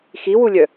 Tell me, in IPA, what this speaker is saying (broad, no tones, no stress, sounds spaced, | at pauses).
x i w u lʲ œ